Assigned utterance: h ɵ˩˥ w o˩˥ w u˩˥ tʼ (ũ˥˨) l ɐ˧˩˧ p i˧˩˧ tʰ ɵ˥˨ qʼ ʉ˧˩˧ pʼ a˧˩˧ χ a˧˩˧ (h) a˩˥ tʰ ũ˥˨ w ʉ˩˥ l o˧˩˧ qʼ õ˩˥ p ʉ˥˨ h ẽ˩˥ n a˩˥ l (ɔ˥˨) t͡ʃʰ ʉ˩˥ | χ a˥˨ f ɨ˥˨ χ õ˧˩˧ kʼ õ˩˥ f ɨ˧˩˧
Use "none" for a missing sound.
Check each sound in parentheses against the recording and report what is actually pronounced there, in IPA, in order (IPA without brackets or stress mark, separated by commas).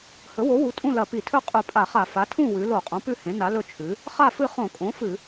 ũ˥˨, f, ɵ˥˨